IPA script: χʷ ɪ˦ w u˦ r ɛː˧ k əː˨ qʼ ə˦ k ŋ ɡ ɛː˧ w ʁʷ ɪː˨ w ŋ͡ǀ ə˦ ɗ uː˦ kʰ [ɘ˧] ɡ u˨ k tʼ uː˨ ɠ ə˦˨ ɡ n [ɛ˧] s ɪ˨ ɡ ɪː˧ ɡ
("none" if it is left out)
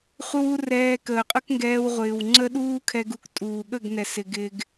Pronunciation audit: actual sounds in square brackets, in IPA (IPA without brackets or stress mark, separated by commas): ɛ˧, ɛ˨